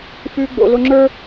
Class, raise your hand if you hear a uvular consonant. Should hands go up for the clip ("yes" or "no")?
no